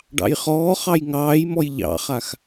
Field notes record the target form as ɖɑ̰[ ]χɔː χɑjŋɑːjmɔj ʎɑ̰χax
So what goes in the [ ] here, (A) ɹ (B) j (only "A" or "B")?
B